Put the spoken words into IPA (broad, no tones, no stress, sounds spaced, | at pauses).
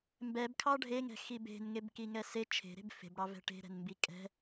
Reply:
m b ɛ b kʰ ɑ ɖʱ e ŋ ɛ̤ x i b e̤ n ŋ e b k i ŋ ɛ s e t͡ʃʰ e̤ ɾ e̤ b f e̤ b ɽ ɑ v ɛ̤ ʈ e̤ ɾ ɛ̤ n m b i kʼ ɛ̤